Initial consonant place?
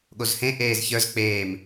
velar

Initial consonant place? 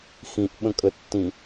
velar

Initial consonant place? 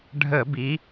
retroflex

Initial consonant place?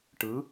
retroflex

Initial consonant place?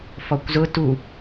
labial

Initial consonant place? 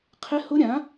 uvular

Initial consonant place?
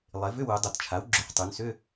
alveolar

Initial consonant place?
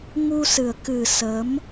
velar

